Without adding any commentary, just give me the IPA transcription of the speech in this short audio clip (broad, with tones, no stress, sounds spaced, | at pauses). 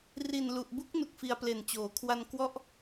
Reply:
r i˨˩ n l u˨˩ ʔ b u˦˥ k̚ n u˨˩ k̚ f i˧ a̯ p l e˨˩ n t͡ɕ oː˩˦ kʰ w a˧ n k w ɔ˥˩ ʔ